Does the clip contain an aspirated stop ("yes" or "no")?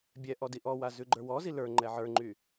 no